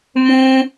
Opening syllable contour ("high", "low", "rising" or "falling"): high